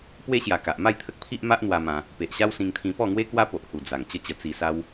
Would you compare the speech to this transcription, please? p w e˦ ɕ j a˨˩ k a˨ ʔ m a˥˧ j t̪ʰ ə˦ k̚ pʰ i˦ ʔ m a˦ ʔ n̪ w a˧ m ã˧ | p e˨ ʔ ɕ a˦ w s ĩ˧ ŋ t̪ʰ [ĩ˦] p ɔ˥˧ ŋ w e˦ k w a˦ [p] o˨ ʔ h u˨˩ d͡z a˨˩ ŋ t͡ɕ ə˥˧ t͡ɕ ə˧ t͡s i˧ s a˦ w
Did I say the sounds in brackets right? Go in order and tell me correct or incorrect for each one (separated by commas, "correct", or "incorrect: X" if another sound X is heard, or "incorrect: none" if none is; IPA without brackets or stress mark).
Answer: incorrect: ĩ˧, correct